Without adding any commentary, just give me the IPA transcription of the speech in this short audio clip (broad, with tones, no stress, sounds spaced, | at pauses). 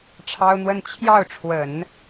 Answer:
ʈ͡ʂʰ ɑ˥ ʊ̯ n̪ w ə˥˧ n t͡ɕʰ j ɑ˥˩ ʊ̯ ʈ͡ʂʰ w ə˨˩˦ n